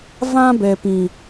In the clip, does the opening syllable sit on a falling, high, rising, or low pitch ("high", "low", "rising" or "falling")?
high